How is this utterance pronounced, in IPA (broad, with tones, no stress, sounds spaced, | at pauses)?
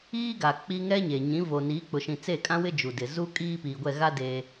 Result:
iː˦ ɡ a˨ k͡p i˦ ŋ ɛ˦ ɲ e˨ ɲ ĩ˨˦ v o˨ n iː˨˦ k͡p ʊ˨ ʃ ĩ˨ t͡s eː˦˨ kʼ ã˦ w ɪ˦ d͡ʒ u˨ d ɪ˨ z u˦ kʼ iː˦ p i˨ ɡʷ ɛ˦˨ ɣ a˦ d eː˦